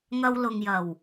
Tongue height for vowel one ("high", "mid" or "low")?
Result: low